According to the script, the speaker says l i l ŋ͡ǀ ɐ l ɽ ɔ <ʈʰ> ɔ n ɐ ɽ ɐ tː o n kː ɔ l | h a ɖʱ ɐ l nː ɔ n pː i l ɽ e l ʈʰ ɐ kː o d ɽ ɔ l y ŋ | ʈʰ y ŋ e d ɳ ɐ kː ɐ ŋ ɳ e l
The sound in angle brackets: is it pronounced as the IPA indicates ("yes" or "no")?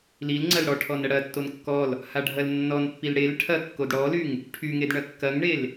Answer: yes